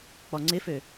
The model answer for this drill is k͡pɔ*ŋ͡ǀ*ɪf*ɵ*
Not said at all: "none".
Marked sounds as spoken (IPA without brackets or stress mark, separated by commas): ŋ͡ǀ, ø